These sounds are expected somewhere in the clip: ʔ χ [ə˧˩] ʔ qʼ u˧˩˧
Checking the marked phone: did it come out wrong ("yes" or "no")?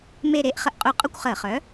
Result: no